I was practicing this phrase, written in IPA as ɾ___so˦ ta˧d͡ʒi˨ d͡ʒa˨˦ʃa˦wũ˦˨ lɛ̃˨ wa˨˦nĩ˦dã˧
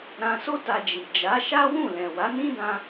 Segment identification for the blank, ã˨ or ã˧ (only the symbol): ã˧